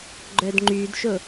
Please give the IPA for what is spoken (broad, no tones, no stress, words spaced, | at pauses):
ɡ͡ǃœdŋ͡ǃydʃo